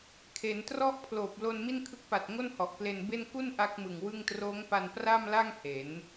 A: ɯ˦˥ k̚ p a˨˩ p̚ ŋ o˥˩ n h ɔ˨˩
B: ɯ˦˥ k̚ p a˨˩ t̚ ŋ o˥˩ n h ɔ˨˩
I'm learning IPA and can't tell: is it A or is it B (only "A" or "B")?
B